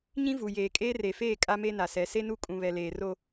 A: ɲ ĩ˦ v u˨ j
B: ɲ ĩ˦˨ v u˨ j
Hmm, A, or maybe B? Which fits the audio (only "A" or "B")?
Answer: A